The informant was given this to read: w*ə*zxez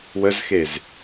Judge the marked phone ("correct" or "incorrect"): correct